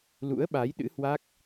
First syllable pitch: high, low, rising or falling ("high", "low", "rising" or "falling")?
rising